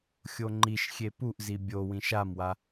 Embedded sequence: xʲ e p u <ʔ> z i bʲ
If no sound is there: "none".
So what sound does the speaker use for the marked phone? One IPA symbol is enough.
ʔ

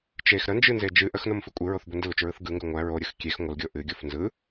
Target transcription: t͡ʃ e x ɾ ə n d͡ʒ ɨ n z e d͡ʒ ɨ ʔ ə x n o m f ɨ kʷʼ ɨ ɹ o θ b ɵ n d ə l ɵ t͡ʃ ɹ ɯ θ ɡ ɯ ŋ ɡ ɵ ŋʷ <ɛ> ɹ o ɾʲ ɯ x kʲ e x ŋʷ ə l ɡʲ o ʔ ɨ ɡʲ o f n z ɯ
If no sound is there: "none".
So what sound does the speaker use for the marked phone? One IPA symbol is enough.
æ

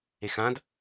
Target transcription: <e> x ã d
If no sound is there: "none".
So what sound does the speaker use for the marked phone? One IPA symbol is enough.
e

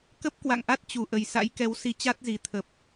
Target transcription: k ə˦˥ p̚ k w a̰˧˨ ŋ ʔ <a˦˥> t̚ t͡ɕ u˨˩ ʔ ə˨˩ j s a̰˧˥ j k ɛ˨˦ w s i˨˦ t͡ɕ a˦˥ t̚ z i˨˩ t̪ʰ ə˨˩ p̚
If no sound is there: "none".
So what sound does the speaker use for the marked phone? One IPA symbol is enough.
a˦˥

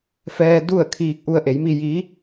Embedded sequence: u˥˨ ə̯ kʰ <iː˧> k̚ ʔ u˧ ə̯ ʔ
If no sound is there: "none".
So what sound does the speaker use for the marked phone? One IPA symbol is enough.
iː˧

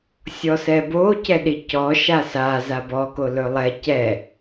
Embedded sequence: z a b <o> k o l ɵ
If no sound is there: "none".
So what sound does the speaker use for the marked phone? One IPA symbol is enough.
ɔ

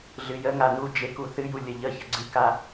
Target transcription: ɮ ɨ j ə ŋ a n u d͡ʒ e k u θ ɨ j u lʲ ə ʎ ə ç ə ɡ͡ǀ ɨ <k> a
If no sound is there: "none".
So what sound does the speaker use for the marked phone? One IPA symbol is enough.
k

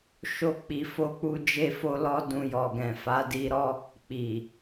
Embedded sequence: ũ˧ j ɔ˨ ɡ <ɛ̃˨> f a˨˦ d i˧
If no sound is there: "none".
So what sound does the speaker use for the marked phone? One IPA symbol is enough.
ɛ̃˨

